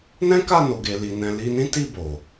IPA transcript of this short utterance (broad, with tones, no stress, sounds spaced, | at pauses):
n ɛ̃˦ k a˦˨ n o˨ ɡ e˨ l i˨ n ɛ̃˧ l i˧ n ĩ˦ t i˦˨ b o˨